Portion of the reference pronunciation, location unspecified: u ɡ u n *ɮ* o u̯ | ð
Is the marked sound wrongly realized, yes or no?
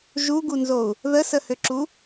yes